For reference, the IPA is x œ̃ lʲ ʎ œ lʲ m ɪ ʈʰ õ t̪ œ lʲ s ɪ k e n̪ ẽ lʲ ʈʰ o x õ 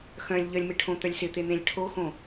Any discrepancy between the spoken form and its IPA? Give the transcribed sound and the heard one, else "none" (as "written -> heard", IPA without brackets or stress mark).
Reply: k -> t̪